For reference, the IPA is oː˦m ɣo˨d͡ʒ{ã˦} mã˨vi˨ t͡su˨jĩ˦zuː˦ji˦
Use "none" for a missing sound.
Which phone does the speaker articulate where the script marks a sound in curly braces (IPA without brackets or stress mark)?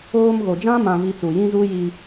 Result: ã˦